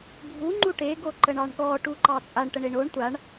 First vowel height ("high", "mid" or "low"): high